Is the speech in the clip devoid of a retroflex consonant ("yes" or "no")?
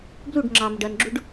no